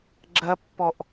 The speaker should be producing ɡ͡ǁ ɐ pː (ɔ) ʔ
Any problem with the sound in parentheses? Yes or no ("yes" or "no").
no